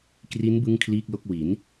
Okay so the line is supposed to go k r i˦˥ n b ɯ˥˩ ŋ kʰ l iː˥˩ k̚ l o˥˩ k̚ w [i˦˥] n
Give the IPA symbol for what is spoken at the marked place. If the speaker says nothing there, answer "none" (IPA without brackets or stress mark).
i˩˦